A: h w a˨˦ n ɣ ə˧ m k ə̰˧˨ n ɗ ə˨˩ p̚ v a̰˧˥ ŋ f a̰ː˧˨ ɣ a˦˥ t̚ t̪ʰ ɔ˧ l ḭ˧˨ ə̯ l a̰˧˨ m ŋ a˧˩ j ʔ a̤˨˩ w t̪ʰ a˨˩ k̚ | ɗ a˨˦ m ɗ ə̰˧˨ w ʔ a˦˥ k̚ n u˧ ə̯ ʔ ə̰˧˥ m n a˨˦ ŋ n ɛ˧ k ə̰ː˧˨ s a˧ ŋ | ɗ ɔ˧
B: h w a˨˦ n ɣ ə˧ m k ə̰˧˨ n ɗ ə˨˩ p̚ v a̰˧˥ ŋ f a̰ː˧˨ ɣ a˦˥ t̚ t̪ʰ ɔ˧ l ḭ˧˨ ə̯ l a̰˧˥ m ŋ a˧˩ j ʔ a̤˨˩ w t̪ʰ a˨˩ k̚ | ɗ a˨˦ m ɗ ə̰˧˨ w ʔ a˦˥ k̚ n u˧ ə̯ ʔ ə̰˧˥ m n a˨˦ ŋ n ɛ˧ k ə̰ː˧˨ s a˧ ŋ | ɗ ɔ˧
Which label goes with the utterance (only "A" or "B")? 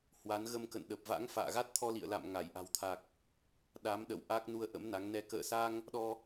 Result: A